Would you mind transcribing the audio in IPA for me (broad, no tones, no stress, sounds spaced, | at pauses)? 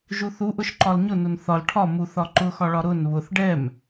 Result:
ʒ u θ u ʔ ʊ ʃ ǃ ɒ l ɲ ʊ n ʊ n θ ɒ l ʈʰ ɒ m u θ ɒ ǃ ʊ x ɒ ɭ ɒ ɾ ʊ n β ʊ θ ɖ ɛ m